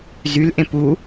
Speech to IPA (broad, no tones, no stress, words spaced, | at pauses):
zylʔẽ pu